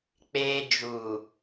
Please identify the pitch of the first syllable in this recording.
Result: high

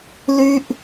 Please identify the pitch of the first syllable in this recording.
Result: high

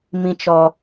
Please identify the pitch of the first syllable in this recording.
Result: high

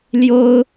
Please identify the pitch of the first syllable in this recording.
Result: high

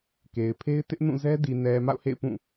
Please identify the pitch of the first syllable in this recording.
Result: low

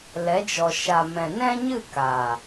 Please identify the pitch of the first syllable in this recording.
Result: rising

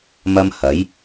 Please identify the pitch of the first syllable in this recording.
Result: high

